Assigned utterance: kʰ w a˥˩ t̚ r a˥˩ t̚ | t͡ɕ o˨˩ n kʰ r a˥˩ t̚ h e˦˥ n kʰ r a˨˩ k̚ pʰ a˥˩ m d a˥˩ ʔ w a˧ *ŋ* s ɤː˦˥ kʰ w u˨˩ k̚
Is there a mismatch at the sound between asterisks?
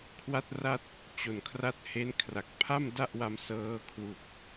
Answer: yes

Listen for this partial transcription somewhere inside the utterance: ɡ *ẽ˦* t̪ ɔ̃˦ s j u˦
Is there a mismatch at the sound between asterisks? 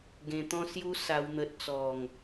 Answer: yes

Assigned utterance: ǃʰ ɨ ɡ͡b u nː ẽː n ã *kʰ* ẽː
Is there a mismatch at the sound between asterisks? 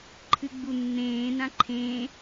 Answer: yes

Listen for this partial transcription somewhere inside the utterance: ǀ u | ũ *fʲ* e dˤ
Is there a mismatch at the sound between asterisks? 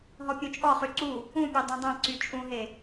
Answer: yes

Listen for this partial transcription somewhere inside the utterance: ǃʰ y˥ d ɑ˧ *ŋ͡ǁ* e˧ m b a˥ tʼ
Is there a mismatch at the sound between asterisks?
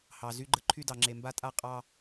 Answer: no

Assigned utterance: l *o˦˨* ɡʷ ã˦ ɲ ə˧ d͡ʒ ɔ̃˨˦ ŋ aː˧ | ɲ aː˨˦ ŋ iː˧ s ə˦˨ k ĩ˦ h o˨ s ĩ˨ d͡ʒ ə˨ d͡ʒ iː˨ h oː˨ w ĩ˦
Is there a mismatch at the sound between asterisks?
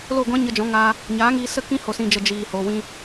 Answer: no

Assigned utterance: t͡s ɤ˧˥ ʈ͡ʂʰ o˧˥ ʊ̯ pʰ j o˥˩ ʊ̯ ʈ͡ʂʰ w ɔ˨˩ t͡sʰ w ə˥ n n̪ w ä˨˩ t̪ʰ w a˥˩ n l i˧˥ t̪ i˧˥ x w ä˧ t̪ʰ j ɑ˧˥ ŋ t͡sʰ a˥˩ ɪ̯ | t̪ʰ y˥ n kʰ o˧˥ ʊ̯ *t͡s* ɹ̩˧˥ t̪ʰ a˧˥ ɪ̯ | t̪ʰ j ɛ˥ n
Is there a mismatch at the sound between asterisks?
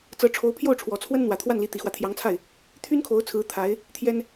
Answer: yes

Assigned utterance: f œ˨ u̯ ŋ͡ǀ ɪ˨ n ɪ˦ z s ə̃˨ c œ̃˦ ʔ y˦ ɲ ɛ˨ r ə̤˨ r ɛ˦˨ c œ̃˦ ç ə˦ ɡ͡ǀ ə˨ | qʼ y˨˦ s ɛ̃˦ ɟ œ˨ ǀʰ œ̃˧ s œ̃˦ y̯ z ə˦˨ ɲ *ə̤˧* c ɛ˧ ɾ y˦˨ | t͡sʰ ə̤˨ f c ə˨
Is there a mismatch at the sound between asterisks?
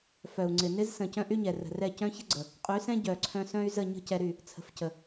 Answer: no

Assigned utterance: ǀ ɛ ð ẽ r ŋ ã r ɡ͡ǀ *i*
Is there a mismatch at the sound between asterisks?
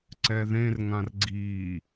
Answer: no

